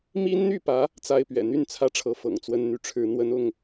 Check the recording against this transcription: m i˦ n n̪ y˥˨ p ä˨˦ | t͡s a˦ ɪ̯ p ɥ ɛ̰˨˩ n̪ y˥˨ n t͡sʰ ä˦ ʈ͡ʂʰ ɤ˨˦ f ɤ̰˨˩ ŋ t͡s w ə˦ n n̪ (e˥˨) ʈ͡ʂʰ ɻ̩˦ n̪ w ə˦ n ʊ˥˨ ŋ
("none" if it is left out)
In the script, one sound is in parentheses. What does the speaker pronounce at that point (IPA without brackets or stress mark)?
y˥˨